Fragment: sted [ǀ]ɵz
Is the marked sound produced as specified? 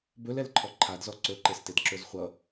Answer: no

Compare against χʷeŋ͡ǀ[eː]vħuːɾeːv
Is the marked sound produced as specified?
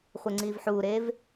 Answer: no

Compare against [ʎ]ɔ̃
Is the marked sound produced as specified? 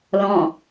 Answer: no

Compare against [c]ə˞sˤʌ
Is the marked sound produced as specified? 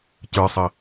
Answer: yes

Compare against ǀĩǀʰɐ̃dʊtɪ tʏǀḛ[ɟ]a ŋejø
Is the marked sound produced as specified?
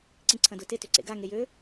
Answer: no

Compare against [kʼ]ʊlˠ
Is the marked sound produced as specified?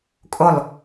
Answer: yes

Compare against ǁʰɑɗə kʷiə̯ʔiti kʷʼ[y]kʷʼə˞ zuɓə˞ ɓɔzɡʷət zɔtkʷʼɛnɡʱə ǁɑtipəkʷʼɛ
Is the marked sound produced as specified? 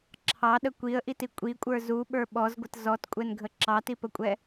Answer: no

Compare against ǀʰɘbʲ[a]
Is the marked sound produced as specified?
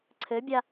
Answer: yes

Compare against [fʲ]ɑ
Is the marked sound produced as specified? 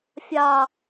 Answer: yes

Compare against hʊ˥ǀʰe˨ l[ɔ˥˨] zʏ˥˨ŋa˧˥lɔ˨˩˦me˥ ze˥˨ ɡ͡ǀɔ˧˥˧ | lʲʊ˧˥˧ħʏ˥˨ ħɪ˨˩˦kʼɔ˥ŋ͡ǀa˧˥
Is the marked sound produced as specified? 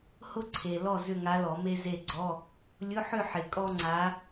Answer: yes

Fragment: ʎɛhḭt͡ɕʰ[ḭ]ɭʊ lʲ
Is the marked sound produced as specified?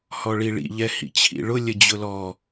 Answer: yes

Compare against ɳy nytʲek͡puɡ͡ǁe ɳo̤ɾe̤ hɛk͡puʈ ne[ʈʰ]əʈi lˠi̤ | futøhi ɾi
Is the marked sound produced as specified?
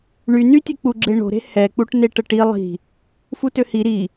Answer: no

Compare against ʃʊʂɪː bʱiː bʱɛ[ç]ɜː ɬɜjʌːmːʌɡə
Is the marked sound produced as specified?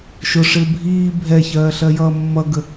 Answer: yes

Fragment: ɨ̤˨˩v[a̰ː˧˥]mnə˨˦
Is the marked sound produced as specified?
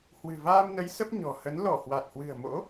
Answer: no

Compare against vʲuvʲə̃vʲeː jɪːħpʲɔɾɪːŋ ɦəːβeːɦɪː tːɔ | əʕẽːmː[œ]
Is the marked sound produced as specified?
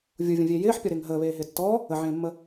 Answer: no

